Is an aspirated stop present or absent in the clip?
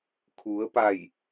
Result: present